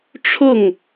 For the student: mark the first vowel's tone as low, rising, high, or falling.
falling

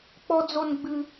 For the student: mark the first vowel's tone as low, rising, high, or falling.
high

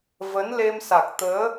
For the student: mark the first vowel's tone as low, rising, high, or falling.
rising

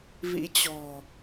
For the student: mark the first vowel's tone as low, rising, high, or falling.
rising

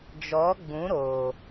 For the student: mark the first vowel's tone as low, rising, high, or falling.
rising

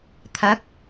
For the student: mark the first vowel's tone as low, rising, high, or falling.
rising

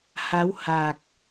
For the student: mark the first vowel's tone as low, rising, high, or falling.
rising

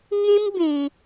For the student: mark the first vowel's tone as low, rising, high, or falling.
high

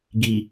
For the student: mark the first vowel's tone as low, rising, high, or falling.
low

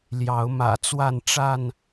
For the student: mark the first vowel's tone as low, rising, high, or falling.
rising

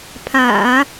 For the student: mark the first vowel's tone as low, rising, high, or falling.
low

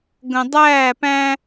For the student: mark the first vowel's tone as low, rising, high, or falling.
low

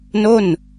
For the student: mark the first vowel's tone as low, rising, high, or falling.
falling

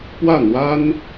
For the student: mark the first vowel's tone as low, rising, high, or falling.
falling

